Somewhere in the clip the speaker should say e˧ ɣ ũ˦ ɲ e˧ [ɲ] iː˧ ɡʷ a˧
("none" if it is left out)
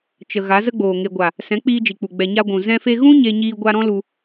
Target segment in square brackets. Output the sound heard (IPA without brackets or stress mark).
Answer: ɲ